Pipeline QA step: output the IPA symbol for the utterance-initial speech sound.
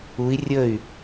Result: u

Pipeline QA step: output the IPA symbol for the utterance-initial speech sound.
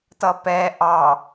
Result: t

